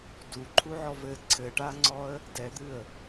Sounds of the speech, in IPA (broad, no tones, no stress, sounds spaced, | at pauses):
d u ǃʰ u ʕ ɔ v ɘ ǀʰ ɘ ʈ a ŋ͡ǀ ɔ ə̯ | d ɛ d̪ ɨ ə̯